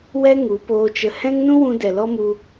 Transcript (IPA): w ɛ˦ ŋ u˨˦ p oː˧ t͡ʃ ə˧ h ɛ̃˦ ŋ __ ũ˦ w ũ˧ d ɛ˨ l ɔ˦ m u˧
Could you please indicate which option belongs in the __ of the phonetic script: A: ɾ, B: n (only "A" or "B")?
B